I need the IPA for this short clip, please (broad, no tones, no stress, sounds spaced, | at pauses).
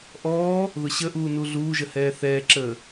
ʔ ɔː | ð ʊ ɕ ə ʔ uː n u ɮ uː ʒ ə h ɛː θ ɛː ǁ əː